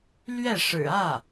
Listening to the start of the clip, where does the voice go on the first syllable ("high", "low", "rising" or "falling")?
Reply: falling